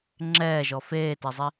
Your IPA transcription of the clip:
ŋ͡ǁ ɛː ʒ ɔ f eː t ɛ zˤ i

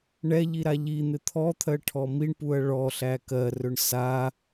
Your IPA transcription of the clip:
ɳ ɛ ʎ i ɾ a ʎ i n̪ ɪ t̪ʰ ɔ t̪ʰ ɜ ʈʰ ɔ m i ɳ p u ɐ̯ ɭ ɔ ɬ æ k ɜ r ɵ ɳ s a

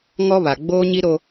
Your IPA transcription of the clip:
ŋ ɔ˦ β a˨ ɡ͡b oː˦ ɲ i˦ ɾ o˦

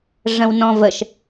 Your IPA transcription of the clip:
ʐ ə̃ w n ɔ̃ v ə ʃ

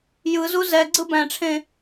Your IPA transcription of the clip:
j ɯ z u z ɛ ɡ͡ǀ ɯ b æ̃ ʈ͡ʂʰ ẽ

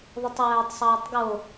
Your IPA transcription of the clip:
ðˤ ɯ tˤ w æː tˤ sˤ ɑː tˤ ɡ o

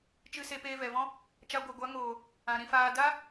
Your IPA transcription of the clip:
t͡ʃ ɨ˧ s e˧ p eː˧ v ɛ˨ v ɔ̃˦ | t͡ʃ a˧ ɡʷ ɛ˨ ɡʷ a˨˦ ŋ oː˨ | ã˨ ɾ ĩ˧ f aː˧ d a˦

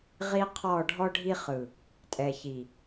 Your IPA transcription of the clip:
ʁ i˦ qʰ ɔ˦˨ ɖʱ ɔ˦ ɖʱ i˦ χ ɯ˨ | tʼ ɛ˨ ç i˨

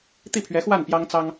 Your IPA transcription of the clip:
t̪ i˥˩ pʰ ɥ ɛ˧˥ x w a˥˩ n p j ɑ˥ ŋ t͡s ɑ˥ ŋ

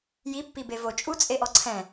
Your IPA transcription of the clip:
j i pː i b e v o t͡ʃʼ u t͡sʼ e ʔ ɔ ǀʰ ɛ̃

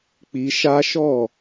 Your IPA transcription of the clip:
k͡p i˧ ʃ a˦ ʃ ɔ˦˨

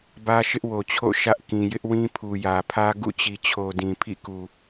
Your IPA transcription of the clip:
b ä˦ ʃ ɪ˦ ʔ w o˨ t͡ɕʰ o̰˦˨ ʃ ä˦ ʔ k ĩ˨ j ɪ˦ ʔ w ĩ˦ pʰ u˨ j ä˨ pʰ ä˦ ɡ ṵ˦˨ t͡ɕ i˨ t͡ɕʰ o˨ d ĩ˨ pʰ ḭ˦˨ k u˨

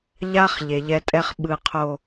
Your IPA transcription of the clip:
ʎ a˦ χ ʎ e˨ ʎ ɛ˦ tʼ ɛ˦ χ ɓ ɯ˨ qʰ o˨

